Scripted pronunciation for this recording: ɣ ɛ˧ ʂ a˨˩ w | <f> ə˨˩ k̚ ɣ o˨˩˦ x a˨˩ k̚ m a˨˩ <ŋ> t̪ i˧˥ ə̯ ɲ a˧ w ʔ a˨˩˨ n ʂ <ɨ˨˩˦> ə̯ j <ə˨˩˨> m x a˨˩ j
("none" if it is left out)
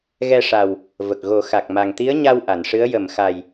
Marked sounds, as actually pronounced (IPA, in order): v, ŋ, ɨ˧˥, ə˨˩˨

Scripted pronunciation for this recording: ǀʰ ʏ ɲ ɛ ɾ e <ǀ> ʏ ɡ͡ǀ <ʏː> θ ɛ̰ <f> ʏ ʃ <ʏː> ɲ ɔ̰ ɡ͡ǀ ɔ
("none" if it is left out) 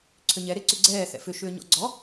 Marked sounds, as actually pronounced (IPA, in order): ǀ, ɛː, f, ʏː

